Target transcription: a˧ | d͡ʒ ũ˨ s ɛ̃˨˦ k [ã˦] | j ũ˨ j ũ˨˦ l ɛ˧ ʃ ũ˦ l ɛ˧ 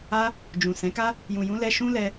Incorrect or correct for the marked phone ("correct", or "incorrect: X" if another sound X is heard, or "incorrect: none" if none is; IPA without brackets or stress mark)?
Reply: incorrect: a˦